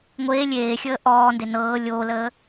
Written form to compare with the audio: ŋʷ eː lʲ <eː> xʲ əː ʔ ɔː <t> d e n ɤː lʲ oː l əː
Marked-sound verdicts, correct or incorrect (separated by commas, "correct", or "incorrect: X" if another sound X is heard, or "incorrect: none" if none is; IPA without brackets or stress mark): correct, incorrect: n